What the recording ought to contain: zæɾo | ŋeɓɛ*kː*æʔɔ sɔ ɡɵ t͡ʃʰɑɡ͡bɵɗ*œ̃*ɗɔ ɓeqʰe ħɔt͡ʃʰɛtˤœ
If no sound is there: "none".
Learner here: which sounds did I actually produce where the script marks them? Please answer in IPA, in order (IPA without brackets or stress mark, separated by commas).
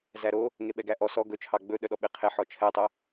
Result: ɡ, œ